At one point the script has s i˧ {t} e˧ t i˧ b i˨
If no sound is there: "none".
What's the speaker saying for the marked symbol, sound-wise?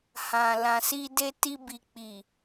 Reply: d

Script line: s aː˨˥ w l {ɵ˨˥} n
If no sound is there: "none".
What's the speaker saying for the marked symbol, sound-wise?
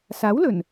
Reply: ɵ˨˩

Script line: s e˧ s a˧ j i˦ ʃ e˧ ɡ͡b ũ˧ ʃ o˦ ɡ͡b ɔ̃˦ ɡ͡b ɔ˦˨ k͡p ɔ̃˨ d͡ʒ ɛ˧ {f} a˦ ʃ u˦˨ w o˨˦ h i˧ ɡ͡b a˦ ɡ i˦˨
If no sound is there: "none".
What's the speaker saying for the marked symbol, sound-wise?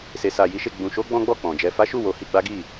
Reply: f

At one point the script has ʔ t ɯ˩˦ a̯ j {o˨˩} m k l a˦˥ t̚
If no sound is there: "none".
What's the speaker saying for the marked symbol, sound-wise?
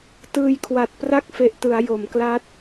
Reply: o˩˦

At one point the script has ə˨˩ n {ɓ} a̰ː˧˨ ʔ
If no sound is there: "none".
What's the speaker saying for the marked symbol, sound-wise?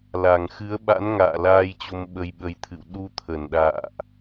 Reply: ɗ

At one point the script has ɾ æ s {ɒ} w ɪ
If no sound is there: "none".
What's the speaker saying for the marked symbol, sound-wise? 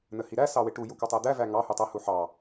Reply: ɑ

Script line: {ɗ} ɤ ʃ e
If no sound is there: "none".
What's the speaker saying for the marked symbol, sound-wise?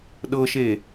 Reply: ɗ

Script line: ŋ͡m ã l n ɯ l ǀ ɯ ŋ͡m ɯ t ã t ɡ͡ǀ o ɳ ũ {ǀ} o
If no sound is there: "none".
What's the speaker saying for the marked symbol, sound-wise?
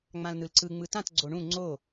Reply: ŋ͡ǀ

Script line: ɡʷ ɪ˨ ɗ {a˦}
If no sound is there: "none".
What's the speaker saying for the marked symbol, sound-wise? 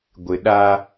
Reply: a˦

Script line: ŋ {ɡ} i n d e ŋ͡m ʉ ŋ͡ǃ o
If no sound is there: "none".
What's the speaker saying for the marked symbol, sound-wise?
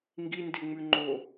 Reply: ɡ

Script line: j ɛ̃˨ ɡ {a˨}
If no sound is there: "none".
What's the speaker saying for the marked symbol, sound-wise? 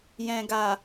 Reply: a˨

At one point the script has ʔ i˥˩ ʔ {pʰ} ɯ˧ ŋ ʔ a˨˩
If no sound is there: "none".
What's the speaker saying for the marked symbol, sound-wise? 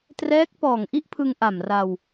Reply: pʰ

